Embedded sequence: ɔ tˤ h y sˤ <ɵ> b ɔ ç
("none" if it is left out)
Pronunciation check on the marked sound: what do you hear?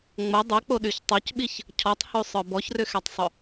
œ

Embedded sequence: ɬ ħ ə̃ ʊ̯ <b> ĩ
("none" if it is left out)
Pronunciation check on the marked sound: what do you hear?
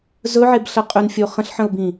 b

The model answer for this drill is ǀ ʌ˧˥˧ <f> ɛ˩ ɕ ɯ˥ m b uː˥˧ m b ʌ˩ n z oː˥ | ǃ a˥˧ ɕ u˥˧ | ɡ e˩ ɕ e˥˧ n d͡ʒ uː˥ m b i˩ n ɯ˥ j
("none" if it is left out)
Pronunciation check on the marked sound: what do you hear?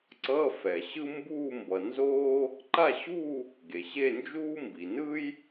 f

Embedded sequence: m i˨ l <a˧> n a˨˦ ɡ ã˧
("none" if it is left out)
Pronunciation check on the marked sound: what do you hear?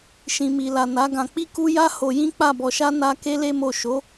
a˨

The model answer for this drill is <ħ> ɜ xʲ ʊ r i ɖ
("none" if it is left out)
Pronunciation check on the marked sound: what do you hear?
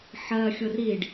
ħ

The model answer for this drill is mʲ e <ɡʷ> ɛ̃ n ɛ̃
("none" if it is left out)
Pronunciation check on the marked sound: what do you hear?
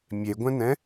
ɡʷ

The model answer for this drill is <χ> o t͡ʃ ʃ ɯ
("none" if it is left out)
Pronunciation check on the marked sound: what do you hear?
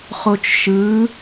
χ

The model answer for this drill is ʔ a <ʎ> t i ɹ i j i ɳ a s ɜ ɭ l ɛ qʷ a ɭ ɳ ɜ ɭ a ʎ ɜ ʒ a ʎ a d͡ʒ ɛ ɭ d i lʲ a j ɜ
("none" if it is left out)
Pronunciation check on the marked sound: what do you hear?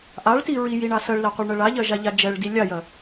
ɭ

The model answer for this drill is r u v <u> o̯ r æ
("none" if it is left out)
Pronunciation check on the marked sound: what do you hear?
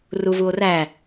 u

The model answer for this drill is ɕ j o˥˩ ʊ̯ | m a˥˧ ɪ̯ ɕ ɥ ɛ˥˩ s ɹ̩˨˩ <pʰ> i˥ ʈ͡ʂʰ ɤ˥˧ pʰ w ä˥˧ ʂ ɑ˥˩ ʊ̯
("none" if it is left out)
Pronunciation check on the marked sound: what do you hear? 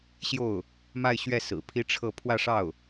pʰ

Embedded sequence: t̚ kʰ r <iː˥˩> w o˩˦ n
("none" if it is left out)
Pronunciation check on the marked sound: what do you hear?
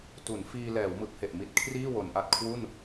iː˥˩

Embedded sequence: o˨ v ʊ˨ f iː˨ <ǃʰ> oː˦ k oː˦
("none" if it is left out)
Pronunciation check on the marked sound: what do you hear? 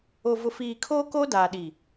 kʰ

